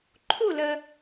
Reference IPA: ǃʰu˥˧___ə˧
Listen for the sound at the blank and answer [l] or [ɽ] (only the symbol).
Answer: l